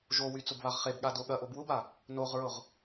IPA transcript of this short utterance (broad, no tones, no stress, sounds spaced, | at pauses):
ʒ o w y t͡s ʊ b β a ʁ χ e b ɠ a d o ɠ ɐ ʔ o b w ʊ b a | n o ʁ ɹ ʊ ʁ